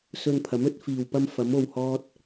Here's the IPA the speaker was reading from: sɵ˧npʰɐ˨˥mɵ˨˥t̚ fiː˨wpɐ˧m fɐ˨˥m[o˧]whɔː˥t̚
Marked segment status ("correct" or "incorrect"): correct